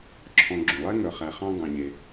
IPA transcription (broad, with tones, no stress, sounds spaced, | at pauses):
ǁʰ ɔ̃˨ ɡ͡ǁ ũ˩ lˠ ɛ˦ ŋ œ˨ χ æ˨ χ ɑ̃˦ ɡ ɑ̃˨ ɲ e˨